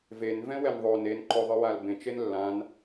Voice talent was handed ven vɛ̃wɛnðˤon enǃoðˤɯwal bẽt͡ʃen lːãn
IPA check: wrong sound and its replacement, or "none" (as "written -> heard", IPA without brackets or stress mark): none